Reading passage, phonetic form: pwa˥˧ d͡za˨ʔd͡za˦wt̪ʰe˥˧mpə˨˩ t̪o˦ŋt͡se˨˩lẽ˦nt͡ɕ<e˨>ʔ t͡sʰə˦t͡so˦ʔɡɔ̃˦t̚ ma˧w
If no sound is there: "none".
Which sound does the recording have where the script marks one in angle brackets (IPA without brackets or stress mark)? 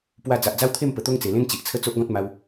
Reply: i˨